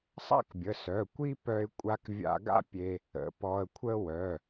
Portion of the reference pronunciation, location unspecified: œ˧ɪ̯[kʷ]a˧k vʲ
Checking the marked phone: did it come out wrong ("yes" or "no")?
yes